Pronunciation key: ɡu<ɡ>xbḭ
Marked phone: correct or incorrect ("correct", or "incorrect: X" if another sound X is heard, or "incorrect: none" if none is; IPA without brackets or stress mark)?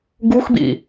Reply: incorrect: none